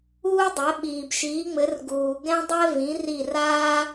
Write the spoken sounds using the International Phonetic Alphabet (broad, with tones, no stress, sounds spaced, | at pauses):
uː˥ dˤ ɛ˨˥ ɓ iː˨ b ʃ iː˨˥ ŋ͡m ɘ˨˥ r ɡ uː˨ ɡ ɛ̃˥ dˤ ɛ˥ v ĩ˨˥ r i˦˨ r aː˥